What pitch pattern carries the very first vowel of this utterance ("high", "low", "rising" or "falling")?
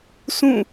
falling